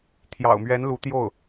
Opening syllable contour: low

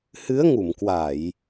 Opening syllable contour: rising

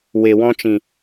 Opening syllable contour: low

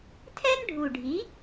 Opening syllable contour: high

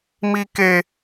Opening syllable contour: high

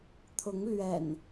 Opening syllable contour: rising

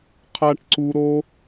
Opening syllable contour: high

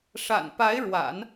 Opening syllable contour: low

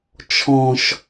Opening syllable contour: low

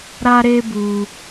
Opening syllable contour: high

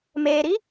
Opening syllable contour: low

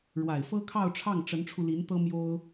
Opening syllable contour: low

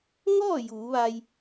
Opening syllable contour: falling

